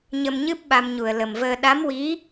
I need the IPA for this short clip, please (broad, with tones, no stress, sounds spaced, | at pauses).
ɲ ə˧ m ɲ ɨ˦˥ p̚ ɓ a˧ m ɲ u˨˩ ə̯ l ə˨˩ m v əː˧ ɗ a˧˥ m w i˧˥